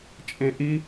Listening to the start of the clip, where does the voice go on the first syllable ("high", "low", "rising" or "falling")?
high